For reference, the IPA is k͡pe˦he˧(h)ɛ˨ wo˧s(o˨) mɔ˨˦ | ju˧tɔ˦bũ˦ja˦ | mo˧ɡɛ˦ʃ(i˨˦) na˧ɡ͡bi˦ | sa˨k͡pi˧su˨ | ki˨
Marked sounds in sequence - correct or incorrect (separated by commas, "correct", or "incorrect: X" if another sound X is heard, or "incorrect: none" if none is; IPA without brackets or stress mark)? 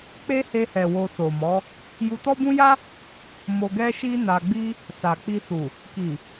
correct, correct, incorrect: i˦